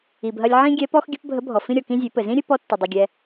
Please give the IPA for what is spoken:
i˩bɦɐ˧lʲ ʕĩ˥ɡʲɛ˧˥pɔ˥x ɡʲɘ˧˥pbʱə˧˥ bʱɔ˩fĩ˧ɾʲɔ˩kĩ˧ zʲe˩˧pɘ˩zĩ˥ ɾʲɘ˥pɔ˧˥tːɐ˩ dˤɐ˩ɡʲɛ˩

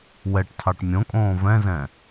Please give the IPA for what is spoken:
wɛʈtʰɑʈ mʲõkʼõː vɛ̃zɛ̃

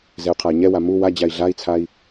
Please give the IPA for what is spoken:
zɛu̯qʰai̯ɲɛwa mu wa d͡ʑai̯ɮai̯t͡sʰai̯

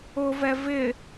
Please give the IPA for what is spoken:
ʊvɛ vɪ

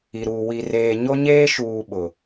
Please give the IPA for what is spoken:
i˨ɾuː˨ wi˨reː˨ ɲo˦ɲeː˦ ʃuː˨ ɓʊ˨

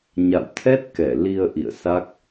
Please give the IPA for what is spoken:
ɲa̰˧˨wt̪ʰɛ˦˥t̚kɛ˧˩ li˧ə̯ ʔḭ˧˨ə̯ sa˦˥k̚

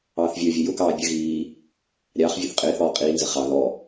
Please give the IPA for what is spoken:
ɑːθvʲə˞vʲʌ jʊkɑː bʲə ɣiː | ɾʲɑːχ vʲuθqʼɪːθɔː qʼiːnzə χɑ ðɔ

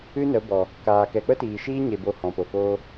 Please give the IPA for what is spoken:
ɨ˦nə˨˦bɔ˨ | kaː˨ kɛ˨k͡pə˦tiː˨ʃiː˦ ɲe˧bo˧hɔ̃˨po˨ koː˧

